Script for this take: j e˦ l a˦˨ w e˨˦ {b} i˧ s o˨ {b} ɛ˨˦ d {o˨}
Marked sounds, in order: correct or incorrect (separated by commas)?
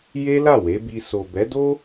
correct, correct, incorrect